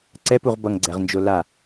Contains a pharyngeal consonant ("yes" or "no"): no